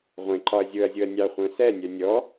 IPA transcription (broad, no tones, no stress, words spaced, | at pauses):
ʁʷẽ ǃɒɐ̯zʲʊɐ̯zʲʊɐ̯ nʲɑχʷœ̃ sɛnʲœ nʲɔ